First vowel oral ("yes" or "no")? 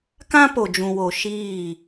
no